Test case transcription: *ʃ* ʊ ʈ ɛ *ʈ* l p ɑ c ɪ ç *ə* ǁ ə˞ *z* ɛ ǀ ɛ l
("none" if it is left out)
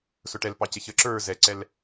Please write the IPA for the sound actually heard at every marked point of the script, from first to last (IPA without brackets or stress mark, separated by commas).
s, none, ə, z